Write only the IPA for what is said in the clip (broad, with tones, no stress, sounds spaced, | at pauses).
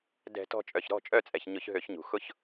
d ɛ̤˧˩˧ t ɔ̤˦˨ t͡ʃʼ œ˩ ç ɾ ɔ̤˦˨ t͡ʃʼ œ˦˨ t͡sʼ ɛ˩ ç ɲ ʊ˧˩˧ ç ɦ ø˧˩˧ ç ɲ ṳ˩ x ʊ˦˨ ç